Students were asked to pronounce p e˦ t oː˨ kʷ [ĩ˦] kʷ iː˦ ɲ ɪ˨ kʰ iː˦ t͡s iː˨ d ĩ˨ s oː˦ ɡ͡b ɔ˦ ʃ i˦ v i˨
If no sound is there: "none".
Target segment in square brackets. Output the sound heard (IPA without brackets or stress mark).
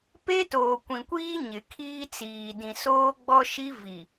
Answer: ĩ˨